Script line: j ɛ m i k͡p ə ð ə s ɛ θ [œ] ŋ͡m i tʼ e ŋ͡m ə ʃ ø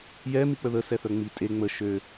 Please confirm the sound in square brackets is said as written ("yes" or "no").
yes